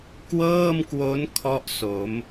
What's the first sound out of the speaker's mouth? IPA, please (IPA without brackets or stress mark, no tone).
k